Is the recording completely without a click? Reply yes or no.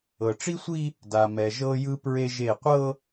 yes